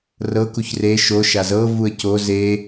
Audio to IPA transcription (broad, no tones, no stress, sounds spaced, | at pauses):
r ɤ k u ç r e ʃ o ʃ a z ɤ v u ə̯ c o z e